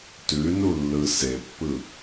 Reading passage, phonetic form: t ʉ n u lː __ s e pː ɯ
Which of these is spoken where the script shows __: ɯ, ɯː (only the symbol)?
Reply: ɯ